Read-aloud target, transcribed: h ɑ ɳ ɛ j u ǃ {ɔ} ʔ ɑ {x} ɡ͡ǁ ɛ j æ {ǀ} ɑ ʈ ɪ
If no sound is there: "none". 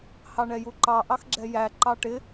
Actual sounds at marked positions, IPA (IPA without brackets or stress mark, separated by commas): ɑ, x, ǃ